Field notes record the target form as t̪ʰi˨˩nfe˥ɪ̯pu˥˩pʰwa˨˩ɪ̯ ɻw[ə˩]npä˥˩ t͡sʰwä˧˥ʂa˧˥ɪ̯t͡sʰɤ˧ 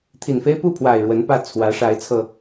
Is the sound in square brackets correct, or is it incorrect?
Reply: incorrect: ə˧˥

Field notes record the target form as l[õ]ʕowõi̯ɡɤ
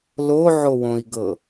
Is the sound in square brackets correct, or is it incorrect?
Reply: incorrect: o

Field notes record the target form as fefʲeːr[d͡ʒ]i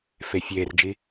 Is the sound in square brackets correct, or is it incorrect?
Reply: correct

